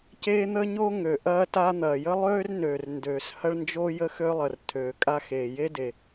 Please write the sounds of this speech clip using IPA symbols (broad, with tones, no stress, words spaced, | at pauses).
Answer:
ceː˥ n̪ə˥ɲo˥ŋø˩ ʔɐː˥ta˥n̪ɐː˩ jə˥lˠøː˥rnøː˩r ndøː˩shɐ˥ɭnd͡ʒo˥ jə˥xø˥lˠə˩r tʰøː˩kʼa˥ xeː˩je˥de˩